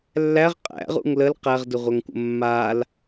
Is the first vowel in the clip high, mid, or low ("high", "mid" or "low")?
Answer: low